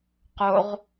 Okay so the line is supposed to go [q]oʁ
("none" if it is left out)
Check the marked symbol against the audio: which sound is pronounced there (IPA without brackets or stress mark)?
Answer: q